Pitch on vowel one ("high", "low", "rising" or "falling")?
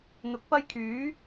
rising